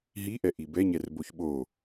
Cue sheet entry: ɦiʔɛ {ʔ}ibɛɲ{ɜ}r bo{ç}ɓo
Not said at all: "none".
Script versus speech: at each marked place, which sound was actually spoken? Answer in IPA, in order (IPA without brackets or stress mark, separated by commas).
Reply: ʔ, ɛ, ç